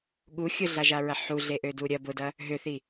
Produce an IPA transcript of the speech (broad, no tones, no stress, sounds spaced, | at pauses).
ɠ u xʲ ʊ ɮ a ʒ a ɹ ɐ ħ u ɮ e ʔ ø d u ɾʲ ɐ b ʊ d ɐ | ɦ ʏ θ i